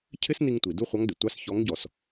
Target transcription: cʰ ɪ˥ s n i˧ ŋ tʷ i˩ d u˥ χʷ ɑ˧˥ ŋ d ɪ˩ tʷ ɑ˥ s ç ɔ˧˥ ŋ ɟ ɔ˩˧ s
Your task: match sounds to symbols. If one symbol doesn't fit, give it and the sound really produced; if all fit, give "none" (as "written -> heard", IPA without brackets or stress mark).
none